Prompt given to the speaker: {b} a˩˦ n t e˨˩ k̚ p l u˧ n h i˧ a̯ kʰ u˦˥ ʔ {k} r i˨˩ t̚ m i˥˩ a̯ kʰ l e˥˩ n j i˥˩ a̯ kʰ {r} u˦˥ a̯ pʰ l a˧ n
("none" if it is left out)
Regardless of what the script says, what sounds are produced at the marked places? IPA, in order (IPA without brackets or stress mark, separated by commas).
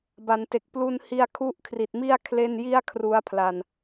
b, kʰ, r